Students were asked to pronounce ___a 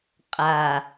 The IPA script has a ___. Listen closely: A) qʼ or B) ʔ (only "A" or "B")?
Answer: A